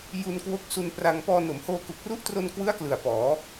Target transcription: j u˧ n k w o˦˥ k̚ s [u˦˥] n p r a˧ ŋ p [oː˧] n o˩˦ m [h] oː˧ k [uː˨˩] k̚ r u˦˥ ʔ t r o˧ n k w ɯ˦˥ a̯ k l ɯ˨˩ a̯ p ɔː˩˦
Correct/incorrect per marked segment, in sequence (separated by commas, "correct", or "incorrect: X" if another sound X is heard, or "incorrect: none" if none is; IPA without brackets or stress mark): incorrect: u˧, incorrect: ɔː˧, correct, incorrect: u˨˩